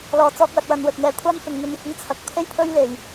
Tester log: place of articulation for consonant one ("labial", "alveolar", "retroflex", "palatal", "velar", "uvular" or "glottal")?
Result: alveolar